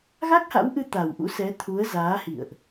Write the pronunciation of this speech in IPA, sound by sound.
ɣ a˦˥ k̚ h a̰˧˥ w ʔ ɨ˧ t̪ a˨˩ w ʔ ṵ˧˥ s ɛ˨˦ t̪ʰ u˨˦ ə̯ z aː˨˦ h ḭ˧˨ ə̯ ʔ

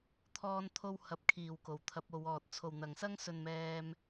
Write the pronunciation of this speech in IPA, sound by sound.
t̪ʰ ɔː˥ n t̪ʰ o˥ w h ɐ˨ p̚ kʰ iː˨˩ w k o˨˩ w t̪ʰ ɐ˨˥ p̚ o˨˧ w ɔː˨ t̚ t͡sʰ o˨˩ w n̪ ɐ˨˩ ŋ s ɐ˥ ŋ s ɵ˨ n m ɛː˧ m

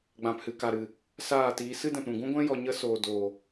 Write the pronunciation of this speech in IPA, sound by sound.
ɡ͡b ã˨ p h ɨ˨ k a˨ ɾ ɨ˨ | s aː˦˨ t iː˧ s ɨ˦ d ɛ̃˨ p ɾ ũ˨ ɡ ũ˦ ɡʷ ɛ̃˦ j ɔ˨ ɲ ə˧ s oː˨ d oː˨

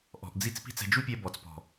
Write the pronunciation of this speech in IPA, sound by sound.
ʔ ɔ̤˨ ʔ d͡z i˦ t͡s p i̤˦ t͡s ɛ̤˧ d͡ʒ u˦ pʲ ɛ˧ b ɔ˨ t͡s p ɔ̤˨

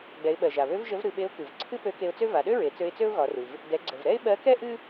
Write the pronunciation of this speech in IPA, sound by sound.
ɡ͡b ɛ˩˧ ɪ̯ ɓ ɜ˩ ʒ a˩ β ø˧˥ v ʒ ə˧˥ v ɾ ɨ˩˧ ɓ e˧˥ ʊ̯ k ɨ˩ v ǀʰ ɨ˥ p ø˧˥ k e˧ ʊ̯ t͡s ø˥ v a˩˧ ɗ ø˥ ɹ e˩˧ t͡s ø˧ ɪ̯ t͡s ø˥ ʊ̯ ɣ ɒ˩˧ r ɨ˩ v | d ɛ˩˧ ɡ͡ǀ ə˩ v ɾ ɛ˥ ɪ̯ ɓ ɜ˧˥ k ɛ˥ ʔ ɨ˥

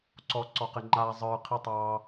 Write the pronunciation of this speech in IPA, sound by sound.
ǀ ɔ ǀ ɔ q ɪ ŋ͡ǃ aː zˤ ə˞ qʰ i tˤ ɑː

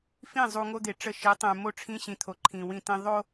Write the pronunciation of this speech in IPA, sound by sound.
f ĩ˦˨ zˤ u˨ ŋ o˦ d̪ e˨ ʈ͡ʂ ə˦˨ ʃ i˨˦ tˤ ẽ˨ m o˦˨ ʈ͡ʂʰ ĩ˦ ɕ ĩ˨ t̪ʰ o˨ ǃʰ ĩ˨ w ĩ˦˨ t ĩ˦ ðˤ o˦

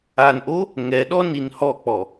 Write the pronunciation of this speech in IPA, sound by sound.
a n ʔ o | ŋ ɛ ɗ ɔ n i n h ɔ k͡p ɔ

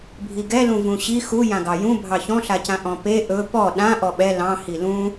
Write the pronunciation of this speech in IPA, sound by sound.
bʱ i ɡ ɛ l ũ v ũ ɕ i x u j ã ɡ ɑ j ũ bʱ ɑ ç ɔ̃ ɬ a c ã ʔ ɔ̃ p e ʔ ɵ p ɔ ɗ ã ʔ ɔ ɓ ɛ l ɑ̃ h i l ũ

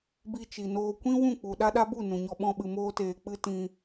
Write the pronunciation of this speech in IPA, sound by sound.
b i˧ t͡ʃ i˨ n oː˧ kʷ ĩ˦ w ũ˦˨ k͡p u˨ ɗ a˦ ɗ a˦ b u˦˨ n ũ˨ ɲ ɔ˧ ɓ ɔ̃˧ ɓ ɨ˨ m oː˧ t eː˨ k͡p ɨ˧ t ĩ˧

